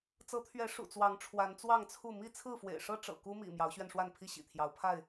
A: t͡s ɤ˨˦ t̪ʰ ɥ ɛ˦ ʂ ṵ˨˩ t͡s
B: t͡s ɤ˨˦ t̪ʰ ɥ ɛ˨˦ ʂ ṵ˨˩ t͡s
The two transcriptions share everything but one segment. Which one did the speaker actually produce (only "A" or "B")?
B